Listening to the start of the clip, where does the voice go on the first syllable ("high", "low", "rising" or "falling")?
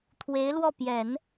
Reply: rising